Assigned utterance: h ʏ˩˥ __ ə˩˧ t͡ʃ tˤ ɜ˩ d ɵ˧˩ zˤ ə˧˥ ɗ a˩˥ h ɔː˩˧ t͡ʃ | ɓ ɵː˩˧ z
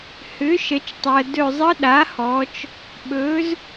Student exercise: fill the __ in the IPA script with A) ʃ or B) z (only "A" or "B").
A